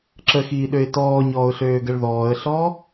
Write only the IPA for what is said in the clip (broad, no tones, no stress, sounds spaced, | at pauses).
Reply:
ǁ ə x iː ɗ ø ɪ̯ t ɔː ɲ ɔː ʊ̯ ɬ øː ɡ ə ɭ ð ɔː ə̯ ɬ ɔ